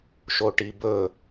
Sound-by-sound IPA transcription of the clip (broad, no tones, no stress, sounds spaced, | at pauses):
ʃ o ʈ i b ɵ